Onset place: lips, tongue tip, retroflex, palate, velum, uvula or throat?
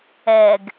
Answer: velum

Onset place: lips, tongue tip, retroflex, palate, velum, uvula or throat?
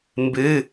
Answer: lips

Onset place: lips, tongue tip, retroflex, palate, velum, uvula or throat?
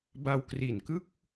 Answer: lips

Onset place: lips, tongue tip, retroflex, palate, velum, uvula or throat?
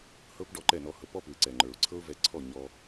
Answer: throat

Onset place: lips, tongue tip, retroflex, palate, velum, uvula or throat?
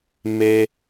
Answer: lips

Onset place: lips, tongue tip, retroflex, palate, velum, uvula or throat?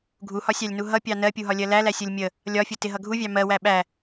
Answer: velum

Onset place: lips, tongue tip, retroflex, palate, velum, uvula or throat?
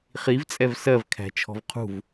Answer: uvula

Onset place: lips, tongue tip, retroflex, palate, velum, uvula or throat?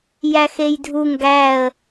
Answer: palate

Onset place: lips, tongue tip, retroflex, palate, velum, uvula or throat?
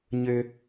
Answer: palate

